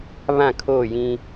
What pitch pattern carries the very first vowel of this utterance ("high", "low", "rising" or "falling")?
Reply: falling